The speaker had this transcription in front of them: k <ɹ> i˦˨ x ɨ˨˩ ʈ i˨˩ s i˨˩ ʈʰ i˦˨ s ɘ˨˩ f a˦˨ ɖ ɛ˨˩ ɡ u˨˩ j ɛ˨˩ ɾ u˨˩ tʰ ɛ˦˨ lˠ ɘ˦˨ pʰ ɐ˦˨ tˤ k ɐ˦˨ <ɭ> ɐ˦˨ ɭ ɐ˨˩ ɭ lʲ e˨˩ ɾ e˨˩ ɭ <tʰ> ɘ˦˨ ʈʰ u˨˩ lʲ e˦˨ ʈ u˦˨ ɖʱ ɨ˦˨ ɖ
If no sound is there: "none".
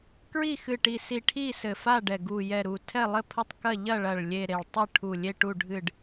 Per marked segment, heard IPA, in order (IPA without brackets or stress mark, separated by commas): ɹ, ʎ, tˤ